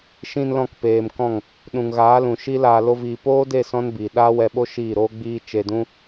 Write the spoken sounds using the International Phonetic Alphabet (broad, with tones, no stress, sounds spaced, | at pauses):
ʃ ĩ˧ n l ɔ̃˧ k p eː˨ m k ɔ̃˦˨ ŋ | ɗ ũ˨ ŋ ɣ aː˨˦ l ũ˨ ʃ i˦ l aː˧ l o˦ v iː˧ p oː˦ d e˦˨ s ɔ̃˦ n b iː˨ ɗ aː˦ w ɛ˧ ɓ o˦ ʃ iː˦˨ ɾ oː˦ ɡ͡b iː˧ t͡ʃ e˧ d ũ˦